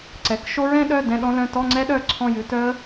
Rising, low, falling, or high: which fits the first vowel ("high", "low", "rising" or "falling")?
rising